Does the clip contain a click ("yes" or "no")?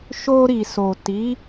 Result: no